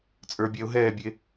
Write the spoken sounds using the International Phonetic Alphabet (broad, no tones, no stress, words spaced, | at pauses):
t͡sʼə˞bʲɛʊ̯ɦɛːbʲe